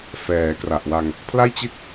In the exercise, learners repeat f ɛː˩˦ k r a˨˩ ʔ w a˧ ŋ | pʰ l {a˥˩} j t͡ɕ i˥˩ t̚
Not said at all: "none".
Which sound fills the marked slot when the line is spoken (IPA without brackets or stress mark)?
a˥˩